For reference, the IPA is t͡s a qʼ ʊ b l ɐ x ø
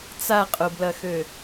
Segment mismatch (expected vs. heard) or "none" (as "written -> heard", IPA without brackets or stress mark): none